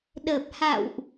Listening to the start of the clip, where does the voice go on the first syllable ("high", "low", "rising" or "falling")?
low